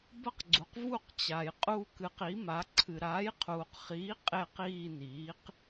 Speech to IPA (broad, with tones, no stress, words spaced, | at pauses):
bɐ˦˨qɡ͡ǀu˩q vu˦˨qt͡ɕa˩j qʼu˦˨kɨ˩˥qi˩˥ma˩˥ ǀʰɨ˩ɾaː˩˥jqʰuː˩qχiː˩˥ qʼe˦˨qiː˦˨niː˩˥q